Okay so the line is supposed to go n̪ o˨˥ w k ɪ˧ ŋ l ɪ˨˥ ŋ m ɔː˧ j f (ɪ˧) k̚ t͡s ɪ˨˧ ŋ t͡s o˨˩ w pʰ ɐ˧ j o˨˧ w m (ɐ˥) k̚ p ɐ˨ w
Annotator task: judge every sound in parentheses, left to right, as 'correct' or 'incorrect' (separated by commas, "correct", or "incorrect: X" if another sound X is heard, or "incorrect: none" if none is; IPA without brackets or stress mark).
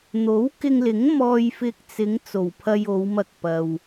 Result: correct, incorrect: ɐ˧